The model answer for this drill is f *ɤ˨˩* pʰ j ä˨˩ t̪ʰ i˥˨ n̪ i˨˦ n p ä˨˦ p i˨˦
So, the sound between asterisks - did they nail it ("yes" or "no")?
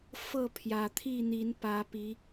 no